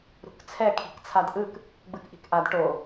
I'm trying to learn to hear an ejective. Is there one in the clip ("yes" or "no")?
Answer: no